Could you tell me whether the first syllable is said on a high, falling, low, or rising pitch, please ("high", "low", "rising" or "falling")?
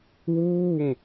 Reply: falling